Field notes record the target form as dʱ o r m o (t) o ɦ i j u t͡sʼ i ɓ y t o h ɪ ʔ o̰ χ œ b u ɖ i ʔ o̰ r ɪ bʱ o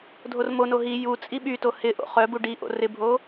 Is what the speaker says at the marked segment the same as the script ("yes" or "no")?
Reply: no